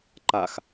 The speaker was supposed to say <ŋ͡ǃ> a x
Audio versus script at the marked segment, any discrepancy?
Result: yes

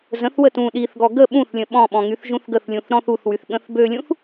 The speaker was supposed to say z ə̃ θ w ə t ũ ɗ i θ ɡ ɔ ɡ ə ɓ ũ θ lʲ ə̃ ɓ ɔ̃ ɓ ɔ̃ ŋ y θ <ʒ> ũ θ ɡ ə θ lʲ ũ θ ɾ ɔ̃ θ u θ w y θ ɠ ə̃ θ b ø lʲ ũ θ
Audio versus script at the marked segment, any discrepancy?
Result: no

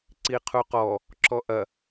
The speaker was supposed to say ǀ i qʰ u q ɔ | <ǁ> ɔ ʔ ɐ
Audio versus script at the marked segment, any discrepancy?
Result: no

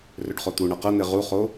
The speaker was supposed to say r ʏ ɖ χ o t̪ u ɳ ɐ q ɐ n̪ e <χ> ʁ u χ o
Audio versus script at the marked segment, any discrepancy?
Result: yes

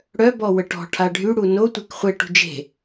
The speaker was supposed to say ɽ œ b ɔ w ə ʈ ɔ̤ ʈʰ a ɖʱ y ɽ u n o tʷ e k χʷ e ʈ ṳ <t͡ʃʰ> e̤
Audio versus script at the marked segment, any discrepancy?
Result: yes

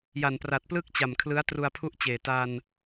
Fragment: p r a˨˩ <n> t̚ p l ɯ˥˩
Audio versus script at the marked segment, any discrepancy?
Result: yes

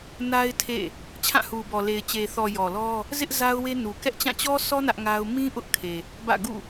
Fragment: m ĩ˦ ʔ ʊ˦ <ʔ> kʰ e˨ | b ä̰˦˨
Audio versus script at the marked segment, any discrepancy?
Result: no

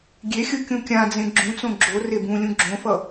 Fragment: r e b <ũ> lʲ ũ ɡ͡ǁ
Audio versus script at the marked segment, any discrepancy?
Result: no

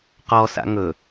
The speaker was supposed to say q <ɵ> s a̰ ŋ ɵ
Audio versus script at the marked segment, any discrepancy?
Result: yes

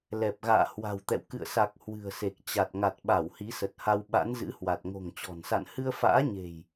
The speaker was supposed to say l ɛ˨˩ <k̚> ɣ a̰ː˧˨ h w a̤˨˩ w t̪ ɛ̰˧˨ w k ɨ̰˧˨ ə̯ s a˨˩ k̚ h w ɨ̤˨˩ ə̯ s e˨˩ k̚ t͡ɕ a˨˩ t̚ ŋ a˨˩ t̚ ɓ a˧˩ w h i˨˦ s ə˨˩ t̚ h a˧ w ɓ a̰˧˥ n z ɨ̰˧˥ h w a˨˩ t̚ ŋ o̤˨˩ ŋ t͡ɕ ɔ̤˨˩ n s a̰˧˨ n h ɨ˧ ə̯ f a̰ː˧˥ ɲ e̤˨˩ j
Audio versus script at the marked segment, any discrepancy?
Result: yes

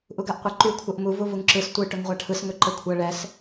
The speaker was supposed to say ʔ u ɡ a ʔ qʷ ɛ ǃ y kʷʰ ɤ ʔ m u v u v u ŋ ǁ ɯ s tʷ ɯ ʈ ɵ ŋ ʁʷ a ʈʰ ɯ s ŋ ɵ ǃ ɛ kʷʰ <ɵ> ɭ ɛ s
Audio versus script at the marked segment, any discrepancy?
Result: yes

